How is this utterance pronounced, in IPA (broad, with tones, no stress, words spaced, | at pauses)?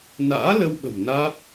na̰ː˧˥ lə˧wɓə̤˨˩m naː˦˥p̚